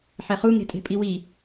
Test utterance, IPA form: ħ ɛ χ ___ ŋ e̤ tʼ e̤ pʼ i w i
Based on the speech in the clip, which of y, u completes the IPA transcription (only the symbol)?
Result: u